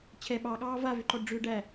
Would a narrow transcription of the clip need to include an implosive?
yes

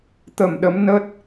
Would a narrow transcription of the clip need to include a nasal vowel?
no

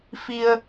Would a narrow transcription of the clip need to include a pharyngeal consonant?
no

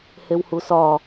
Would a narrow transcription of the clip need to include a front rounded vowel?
no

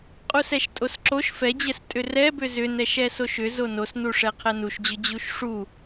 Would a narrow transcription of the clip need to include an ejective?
yes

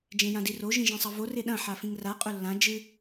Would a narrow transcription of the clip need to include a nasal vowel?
yes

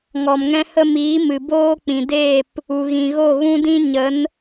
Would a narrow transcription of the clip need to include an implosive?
no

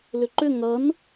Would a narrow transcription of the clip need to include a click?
yes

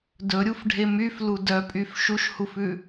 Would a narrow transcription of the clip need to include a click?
no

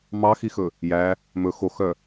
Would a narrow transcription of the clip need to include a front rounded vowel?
yes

